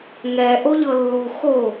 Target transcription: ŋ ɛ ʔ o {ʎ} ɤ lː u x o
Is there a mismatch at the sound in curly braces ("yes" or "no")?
no